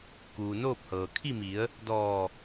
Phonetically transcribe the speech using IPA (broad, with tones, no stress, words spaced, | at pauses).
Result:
kuː˩noː˥˨p̚hɤː˩ kʰi˥˨mi˩˧ə̯ | dɔː˧˩